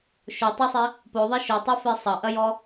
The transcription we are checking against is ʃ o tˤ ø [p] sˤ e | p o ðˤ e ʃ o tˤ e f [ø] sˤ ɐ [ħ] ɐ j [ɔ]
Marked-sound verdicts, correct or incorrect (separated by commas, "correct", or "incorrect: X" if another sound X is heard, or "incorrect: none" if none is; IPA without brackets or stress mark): incorrect: none, incorrect: e, incorrect: ʔ, correct